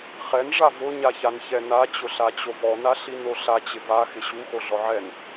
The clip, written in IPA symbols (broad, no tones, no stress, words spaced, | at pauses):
χɛn ʐavʊ ɲaçançɛna t͡ɕʊɬat͡ɕovɔ naɬinoɬa t͡ɕɪva xɪɕu xoɮɔʕɛn